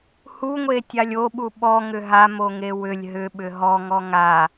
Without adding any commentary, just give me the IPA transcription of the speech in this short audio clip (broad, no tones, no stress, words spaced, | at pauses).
huŋʷetʲalʲ oɓu ɓɔŋʏ ɦamoŋe wʏlʲ ɦʏɓʏ ɦɔŋɔ ŋa